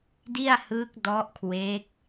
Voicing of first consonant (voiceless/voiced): voiced